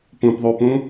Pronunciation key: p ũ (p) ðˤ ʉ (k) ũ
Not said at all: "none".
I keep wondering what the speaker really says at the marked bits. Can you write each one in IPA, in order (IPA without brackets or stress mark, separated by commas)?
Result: p, p